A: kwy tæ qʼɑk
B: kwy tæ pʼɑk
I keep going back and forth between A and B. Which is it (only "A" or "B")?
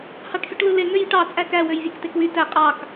A